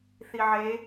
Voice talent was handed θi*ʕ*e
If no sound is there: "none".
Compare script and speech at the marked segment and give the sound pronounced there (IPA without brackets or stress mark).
ʕ